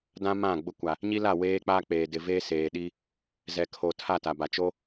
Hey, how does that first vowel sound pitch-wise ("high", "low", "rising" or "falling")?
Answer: high